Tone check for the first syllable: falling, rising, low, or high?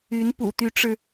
rising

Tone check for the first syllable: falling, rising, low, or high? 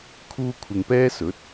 high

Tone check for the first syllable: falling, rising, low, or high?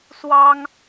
high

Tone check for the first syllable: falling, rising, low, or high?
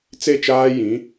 falling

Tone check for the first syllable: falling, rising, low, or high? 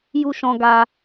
high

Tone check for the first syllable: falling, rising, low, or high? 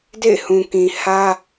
falling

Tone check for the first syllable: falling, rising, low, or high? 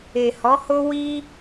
low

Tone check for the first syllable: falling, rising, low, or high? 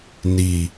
low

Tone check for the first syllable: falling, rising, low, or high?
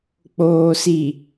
low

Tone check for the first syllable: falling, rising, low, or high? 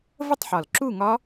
falling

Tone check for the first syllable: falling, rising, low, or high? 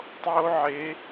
high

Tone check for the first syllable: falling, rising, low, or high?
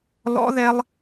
high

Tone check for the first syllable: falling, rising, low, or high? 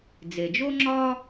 low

